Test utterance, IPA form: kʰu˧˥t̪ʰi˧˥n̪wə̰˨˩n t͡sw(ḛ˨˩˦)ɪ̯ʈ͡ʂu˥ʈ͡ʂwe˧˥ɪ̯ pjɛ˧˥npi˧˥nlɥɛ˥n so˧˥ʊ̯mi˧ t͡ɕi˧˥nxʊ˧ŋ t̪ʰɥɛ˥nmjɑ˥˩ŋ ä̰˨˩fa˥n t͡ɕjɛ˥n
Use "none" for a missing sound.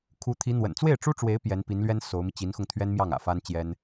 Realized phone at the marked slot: e˥˩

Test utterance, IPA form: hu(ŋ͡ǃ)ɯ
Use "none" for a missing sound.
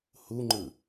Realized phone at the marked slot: ŋ͡ǃ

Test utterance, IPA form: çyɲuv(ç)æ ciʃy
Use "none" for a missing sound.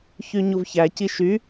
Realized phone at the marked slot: ç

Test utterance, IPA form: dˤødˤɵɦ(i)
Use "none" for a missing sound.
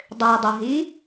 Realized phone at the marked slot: i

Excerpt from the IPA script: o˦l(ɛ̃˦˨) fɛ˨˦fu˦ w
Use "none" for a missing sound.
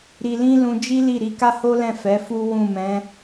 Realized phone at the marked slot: ɛ̃˦˨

